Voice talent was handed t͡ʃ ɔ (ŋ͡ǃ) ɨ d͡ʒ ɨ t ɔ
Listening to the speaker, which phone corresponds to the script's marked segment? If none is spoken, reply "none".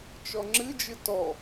ŋ͡ǁ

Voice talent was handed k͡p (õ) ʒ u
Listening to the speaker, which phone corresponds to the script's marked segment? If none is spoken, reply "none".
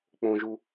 õ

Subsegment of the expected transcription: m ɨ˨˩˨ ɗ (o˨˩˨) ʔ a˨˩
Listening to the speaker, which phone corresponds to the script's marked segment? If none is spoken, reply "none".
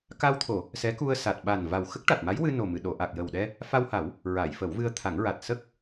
o˨˩˨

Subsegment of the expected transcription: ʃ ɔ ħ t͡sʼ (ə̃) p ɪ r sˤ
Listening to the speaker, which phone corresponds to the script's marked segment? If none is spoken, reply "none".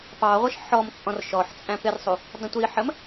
æ̃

